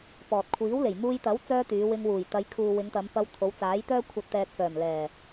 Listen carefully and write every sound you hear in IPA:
pɔː˨t̚ kʷʰiː˨˥wle˨˩j muː˧jt̪ɐ˨˥w t͡sœː˥t̪yː˨˧ wɪ˧ŋwuː˨˩jt̪ɐ˨˧jkʰuː˨ wɪ˨˧ŋt̪ɐ˨˧mpɐ˧w t̪ʰo˨˧wt͡saː˨˥jt̪œː˥ kʷʰɐ˨t̚t̪ɛː˨k̚ fœː˨˩m lɛː˨˩

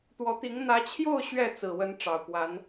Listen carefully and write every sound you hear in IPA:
t̪wɔ˧˥t̪i˧˥ŋ n̪ä˧˥t͡ɕʰjo˥˧ʊ̯ ɕɥɛ˥˩ t͡sɹ̩˨˩wə˧˥n ʈ͡ʂɑ˨˩ʊ̯kwa˧˥n

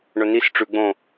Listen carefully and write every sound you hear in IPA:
ɳɵnis ʈ͡ʂʉ ɡ͡bõ

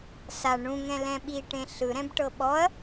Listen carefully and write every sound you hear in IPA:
sa ɳũŋɛ̃ lɛ̃ɓiʈẽ ɬɯɾɛ̃b ʈɤɓɔɐ̯

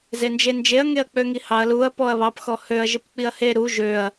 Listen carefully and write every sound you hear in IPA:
zend͡ʒend͡ʒeɐ̯ ŋeɐ̯k͡pøŋihɑɐ̯ luɐ̯ pɔɐ̯βɑp xɔhøɐ̯ ʒɘpk͡piɐ̯he ɾu ʒøɐ̯

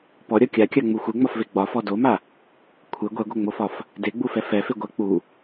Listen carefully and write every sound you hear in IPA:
pɔɾʲɒ kʲakʲaŋ͡mu xʷeŋ͡mɒfve ɡ͡bɒfɔ doma | kʷʰe ɡʷɛɡʷɛŋ͡mofɒf | deɡ͡bufɛ fɛfe ɡʷɛ k͡pu

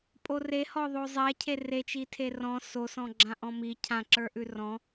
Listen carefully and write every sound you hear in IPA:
pʼorehɔðˤo zˤɛ cʰeret͡ʃi tʰerɔ̃ sosɔ̃ ɡ͡ǁãʔɔ̃mi cʰãǁə˞ʔʉ rɔ̃

